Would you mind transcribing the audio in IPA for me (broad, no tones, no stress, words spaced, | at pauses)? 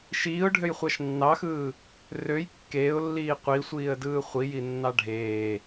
ʃiːʊ̯ɖʱøjχʷɑʃ nːɑxɯː | røj kːeːʊ̯lːiː qʷisʷiːə̯dɯː χʷijinːɑ ɖʱeː